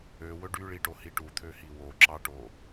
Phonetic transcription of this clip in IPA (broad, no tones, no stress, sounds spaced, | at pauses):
ø w ɵ ɖ y ɭ i ʈ o h i ʈ u t̪ʰ ø h i w o ǁ ɑ ʈ o